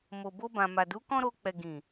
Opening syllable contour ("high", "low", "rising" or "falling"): low